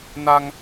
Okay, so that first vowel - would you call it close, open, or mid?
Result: open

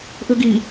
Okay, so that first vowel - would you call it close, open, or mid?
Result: close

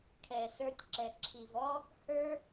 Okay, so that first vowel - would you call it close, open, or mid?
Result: mid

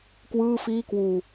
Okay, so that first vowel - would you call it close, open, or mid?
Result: close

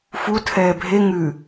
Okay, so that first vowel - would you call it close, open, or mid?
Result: close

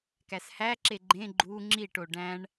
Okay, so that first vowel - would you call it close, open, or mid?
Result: open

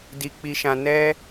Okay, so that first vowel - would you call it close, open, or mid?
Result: close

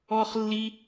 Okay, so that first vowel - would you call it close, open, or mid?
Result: mid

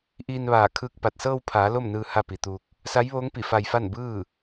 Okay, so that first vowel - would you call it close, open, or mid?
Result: close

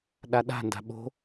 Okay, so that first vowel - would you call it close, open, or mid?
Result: open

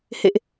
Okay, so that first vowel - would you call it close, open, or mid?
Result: mid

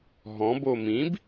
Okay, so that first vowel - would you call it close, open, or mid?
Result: mid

